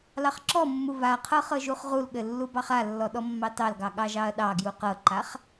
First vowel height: low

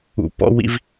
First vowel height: high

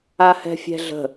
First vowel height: low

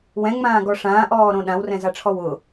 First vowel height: mid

